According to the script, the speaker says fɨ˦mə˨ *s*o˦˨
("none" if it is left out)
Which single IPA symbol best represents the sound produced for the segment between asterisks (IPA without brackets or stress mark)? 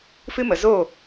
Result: z